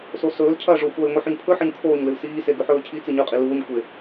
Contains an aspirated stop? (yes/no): yes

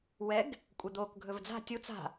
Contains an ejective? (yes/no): yes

